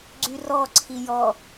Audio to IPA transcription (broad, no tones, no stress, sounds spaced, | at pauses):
ɡ͡ǀ y r ɔ ǀʰ i j ɔ